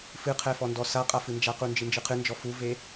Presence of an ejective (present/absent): present